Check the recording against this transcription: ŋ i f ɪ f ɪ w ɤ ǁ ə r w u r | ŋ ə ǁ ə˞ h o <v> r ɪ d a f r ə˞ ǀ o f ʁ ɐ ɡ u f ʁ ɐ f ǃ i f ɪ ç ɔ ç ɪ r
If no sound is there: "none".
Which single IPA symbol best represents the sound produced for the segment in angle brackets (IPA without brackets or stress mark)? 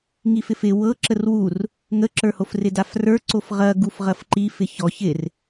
f